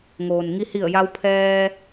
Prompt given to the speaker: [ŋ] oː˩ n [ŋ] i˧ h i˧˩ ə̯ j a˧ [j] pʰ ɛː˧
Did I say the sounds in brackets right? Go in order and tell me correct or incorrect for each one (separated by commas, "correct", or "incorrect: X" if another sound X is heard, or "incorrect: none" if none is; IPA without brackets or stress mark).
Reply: correct, correct, incorrect: w